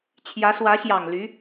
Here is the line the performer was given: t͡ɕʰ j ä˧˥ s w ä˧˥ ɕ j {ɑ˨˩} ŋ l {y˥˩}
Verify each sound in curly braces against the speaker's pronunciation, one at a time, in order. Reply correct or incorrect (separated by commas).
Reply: correct, incorrect